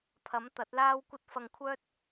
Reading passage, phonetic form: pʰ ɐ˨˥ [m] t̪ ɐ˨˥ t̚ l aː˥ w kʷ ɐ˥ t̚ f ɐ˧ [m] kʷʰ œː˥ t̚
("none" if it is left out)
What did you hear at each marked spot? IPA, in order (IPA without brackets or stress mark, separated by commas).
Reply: m, ŋ